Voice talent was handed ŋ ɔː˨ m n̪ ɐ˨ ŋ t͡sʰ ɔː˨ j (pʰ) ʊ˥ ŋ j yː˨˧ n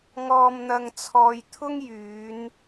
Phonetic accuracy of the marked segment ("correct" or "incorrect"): incorrect